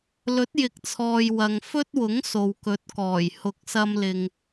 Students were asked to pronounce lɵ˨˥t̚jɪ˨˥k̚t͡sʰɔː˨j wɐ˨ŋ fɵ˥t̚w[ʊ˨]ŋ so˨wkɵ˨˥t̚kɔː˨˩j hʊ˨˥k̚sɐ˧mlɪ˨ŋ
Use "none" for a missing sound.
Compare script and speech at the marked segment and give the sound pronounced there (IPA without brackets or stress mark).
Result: ʊ˨˥